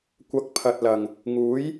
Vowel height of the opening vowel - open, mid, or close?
open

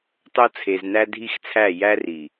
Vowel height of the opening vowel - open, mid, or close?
mid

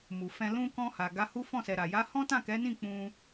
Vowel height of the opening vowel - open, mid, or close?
close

